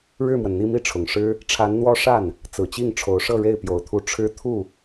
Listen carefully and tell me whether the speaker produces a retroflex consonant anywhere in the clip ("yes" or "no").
yes